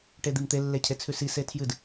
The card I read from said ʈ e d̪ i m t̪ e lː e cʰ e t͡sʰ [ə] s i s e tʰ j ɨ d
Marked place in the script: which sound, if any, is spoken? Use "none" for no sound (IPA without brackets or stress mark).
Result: ʉ